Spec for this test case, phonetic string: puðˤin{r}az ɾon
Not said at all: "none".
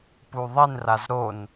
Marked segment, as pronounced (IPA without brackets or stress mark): r